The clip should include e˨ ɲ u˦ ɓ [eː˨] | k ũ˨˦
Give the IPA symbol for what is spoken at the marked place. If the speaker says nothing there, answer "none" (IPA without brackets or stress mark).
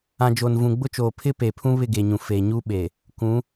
e˨